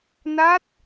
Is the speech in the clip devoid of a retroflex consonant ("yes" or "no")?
yes